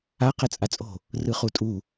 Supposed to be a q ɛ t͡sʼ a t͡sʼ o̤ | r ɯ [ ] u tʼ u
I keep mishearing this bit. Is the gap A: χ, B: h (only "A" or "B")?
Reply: A